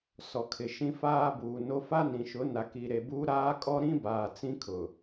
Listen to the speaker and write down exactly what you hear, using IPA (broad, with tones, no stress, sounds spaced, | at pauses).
s ɔ˨ kʰ ɪ˨ ʃ ĩ˦ f aː˦ b uː˨ n o˦ f a˦ n ĩ˨ ʃ ʊ˨˦ n a˨ k i˨ ɾ e˨ b uː˦ ɾ aː˦ kʼ ɔ˦ ɾ ĩ˦ b aː˨ t͡s ĩ˦ kʰ ʊ˨